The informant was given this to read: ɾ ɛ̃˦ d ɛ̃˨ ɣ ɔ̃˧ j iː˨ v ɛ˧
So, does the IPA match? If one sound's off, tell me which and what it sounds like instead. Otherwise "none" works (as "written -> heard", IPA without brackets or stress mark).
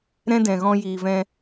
ɛ˧ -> ɛ̃˧